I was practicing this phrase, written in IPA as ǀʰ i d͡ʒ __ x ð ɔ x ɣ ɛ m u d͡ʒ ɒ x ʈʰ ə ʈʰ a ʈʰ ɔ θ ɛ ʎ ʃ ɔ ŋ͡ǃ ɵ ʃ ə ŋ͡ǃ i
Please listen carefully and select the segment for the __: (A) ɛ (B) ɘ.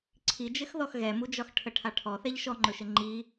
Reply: B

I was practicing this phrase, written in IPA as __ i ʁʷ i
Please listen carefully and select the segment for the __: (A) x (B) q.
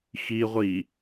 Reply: A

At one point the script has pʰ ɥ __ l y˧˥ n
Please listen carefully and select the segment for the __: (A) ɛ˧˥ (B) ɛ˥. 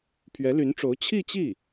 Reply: A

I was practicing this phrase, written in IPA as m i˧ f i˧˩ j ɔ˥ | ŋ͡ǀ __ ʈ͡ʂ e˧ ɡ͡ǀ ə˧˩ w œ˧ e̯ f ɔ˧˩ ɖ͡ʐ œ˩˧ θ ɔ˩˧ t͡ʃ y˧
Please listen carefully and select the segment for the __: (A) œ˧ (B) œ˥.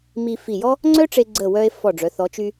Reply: B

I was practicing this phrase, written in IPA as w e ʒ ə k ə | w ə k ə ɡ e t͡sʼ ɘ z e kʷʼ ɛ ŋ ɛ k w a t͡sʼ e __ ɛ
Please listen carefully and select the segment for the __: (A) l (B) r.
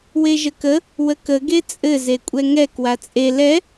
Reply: A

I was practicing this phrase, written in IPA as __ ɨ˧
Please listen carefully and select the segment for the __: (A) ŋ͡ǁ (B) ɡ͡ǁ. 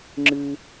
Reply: A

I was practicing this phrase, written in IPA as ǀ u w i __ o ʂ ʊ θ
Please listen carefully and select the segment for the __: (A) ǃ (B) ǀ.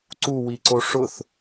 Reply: B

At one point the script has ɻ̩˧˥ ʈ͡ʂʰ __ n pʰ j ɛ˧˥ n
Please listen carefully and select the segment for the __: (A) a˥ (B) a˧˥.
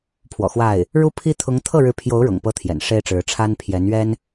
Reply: A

